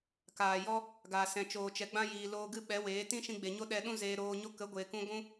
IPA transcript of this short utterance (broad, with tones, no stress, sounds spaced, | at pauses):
k aː˨ j ɔ˦ | ɡ a˨ s ɛ̃˨ t͡ʃ oː˨ t͡ʃ ɛ˨ ɡ͡b ã˧ j iː˨ l oː˧ ɡ ɨ˦ ɓ ɛ˨˦ w eː˨˦ t ĩ˦ ʃ ĩ˧ ɡ͡b e˨ ɲ o˦ ɗ ɛ˧ ɗ ũ˦ z eː˧ ɾ oː˧ ɲ o˦ k ə˨˦ ɡʷ eː˨ k ũ˧ ɡʷ ũ˦